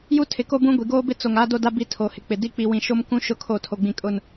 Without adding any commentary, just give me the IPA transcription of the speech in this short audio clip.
j u˦ tʰ ɪ˨ k o˦ b ũ˦ ɡʷ i˨ ɡ oː˦ b ɪ˦ t͡s o˨ ŋ a˦ d o˦ d a˦ b i˦ tʰ o˨ h ɪ˨ k͡p ɪ˨ d i˦ k͡p i˨ w ĩ˨ ʃ o˦ m k ũ˦ ʃ ʊ˦ kʰ o˦˨ tʰ o˨ ɡ͡b ĩ˨ kʼ ʊ˦˨ n

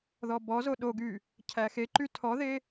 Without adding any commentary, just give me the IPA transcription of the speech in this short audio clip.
ð ɔ b ɔ z o ɗ o ɡ y | cʰ æ x e ǃ y tʰ ɔ ð e

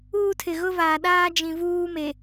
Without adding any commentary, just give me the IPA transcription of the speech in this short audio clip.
uː˦ tʰ ɪ˨ ɣ ʊ˦ v aː˨ ɗ aː˦ d͡ʒ ĩ˨ v uː˦ m e˨

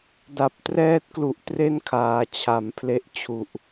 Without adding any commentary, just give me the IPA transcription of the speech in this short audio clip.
d a˨˩ p̚ t r ɛː˥˩ t̚ k l u˨˩ ʔ t r e˥˩ n kʰ aː˩˦ t͡ɕʰ a˩˦ m pʰ l e˦˥ ʔ t͡ɕʰ u˨˩ ʔ

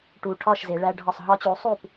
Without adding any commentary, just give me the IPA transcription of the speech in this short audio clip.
ʈ u˨˩ ʈʰ ɒ˥˩ ʃ z e˩˧ ɭ æ˦ ɖʱ ɒ˥˩ sˤ ɦ ɒ˦ t͡ɕ u˩˥ sˤ u˥˩ p

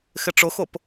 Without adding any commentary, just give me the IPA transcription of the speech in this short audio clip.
x ɪ ʈ͡ʂ ʊ x ʊ p

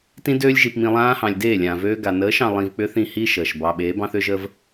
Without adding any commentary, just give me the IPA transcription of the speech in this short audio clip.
t ĩ˧ d øː˧ lʲ ʒ i˨ p m ĩ˨ lˠ ãː˧ h ɑ̃˨ lʲ d eː˦˨ lʲ ãː˨ v øː˧ ɡ a˨ n əː˨˦ ʃ ɑ̃˨ lˠ ĩ˧ v k͡p ʏ˦ θ ĩ˦˨ h i˦ ʃ əː˨ ʃ b ɑ˧ ɓ eː˨˦ b ɑ̃˦ θ ʏ˦ ʒ əː˦ v

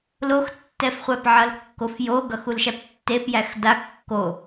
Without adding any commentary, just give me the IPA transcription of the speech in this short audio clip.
l o x tː ɛ f χʷ æ p ʕ ʌ l kː o f j o ɡ ʌ x u l ʃ æ p tː e p j æ x d a kː o

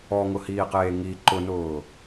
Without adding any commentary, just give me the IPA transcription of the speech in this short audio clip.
ɔ ŋ ʊ h iː q eː ŋ i ǃ ʊ n ʊː

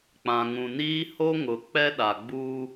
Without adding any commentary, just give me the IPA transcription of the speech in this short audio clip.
k͡p ã˨ ŋ ũ˨ n iː˦ h o˦ ŋ ʊ˨ k͡p ɛ˦ ɗ a˨ ɡ͡b uː˦

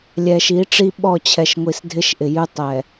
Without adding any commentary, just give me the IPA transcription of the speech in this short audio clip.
lʲ ɛ˨ ʃ i˨˦ ʈ͡ʂ i˦ ɓ ɔ˦˨ t͡ɕʰ ɛ˨ ʃ ŋʷ i˨ s dʱ ɪ˦ ʃ ʔ ɪ˨ j ʉ˦ tˤ ɛ˨

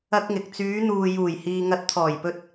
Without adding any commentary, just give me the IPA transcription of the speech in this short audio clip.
ɐ˥ k̚ ŋ ɪ˨ k̚ t͡s yː˨˧ n̪ uː˨ j uː˨˩ j h iː˨ ŋ ɐ˨˥ t̚ t̪ʰ ɔː˨˩ j p ɵ˧ t̚

